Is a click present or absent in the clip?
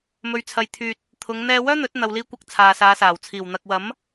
absent